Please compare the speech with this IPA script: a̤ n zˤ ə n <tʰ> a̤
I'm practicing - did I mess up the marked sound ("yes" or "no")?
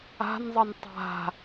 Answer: yes